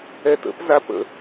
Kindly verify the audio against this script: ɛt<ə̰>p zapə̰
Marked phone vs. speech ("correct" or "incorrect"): correct